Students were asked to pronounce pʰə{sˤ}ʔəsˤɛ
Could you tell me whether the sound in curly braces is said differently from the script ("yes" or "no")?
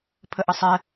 yes